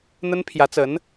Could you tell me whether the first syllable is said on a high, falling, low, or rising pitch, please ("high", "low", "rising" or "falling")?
high